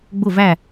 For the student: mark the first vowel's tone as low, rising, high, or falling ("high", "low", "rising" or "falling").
falling